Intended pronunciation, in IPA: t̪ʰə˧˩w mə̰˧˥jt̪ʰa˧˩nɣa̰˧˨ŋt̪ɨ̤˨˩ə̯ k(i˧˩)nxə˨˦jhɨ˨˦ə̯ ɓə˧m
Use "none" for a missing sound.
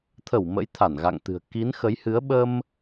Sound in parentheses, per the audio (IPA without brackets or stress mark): i˨˦